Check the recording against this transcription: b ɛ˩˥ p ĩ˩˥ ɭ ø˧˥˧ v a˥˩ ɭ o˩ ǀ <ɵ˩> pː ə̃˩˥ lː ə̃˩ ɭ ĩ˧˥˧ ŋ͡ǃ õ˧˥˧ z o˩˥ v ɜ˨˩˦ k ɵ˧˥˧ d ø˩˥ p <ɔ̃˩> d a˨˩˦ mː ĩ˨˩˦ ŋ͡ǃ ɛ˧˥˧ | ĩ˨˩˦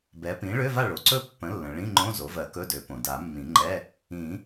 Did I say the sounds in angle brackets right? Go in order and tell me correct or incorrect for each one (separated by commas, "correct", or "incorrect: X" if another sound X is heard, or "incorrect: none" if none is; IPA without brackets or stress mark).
incorrect: ɵ˥˩, incorrect: õ˩